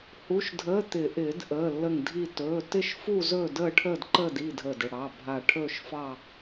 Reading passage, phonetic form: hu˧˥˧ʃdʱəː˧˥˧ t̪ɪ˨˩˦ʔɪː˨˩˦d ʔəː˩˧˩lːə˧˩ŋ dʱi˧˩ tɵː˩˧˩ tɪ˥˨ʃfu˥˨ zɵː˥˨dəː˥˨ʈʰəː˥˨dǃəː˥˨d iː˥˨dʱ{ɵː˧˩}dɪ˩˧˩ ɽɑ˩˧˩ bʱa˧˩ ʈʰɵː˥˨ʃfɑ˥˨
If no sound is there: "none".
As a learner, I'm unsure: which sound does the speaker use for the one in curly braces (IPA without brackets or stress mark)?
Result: əː˧˩